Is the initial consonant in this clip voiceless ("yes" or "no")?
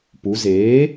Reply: yes